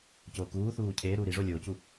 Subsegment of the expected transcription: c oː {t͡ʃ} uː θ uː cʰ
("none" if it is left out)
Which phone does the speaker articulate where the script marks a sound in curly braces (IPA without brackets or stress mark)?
k